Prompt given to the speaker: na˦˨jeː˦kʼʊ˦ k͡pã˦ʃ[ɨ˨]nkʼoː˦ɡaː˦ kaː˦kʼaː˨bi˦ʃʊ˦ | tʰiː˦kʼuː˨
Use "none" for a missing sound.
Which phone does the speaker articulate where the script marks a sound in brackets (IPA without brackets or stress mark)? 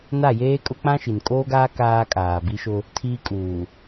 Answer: i˨